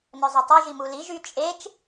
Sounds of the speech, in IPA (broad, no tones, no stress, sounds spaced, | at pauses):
n œ zˤ ə tˤ y ʒ i m u l i ʒ y t͡ʃʼ e t͡ʃ